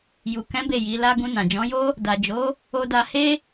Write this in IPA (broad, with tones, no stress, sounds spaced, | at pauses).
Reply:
j u˨ k ɛ̃˨˦ b e˦˨ j i˨˦ l a˦ ɡ ũ˧ n ã˨ d͡ʒ ɔ̃˨˦ j o˦ | d a˨ d͡ʒ o˨˦ | o˦ d a˦ h e˦